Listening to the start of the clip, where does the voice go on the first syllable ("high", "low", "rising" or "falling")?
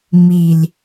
low